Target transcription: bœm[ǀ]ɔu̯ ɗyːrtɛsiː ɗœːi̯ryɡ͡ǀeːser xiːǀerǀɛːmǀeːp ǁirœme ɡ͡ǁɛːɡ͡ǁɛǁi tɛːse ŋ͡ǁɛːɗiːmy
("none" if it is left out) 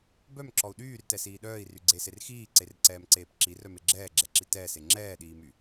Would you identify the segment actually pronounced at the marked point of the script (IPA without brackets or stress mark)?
ǁ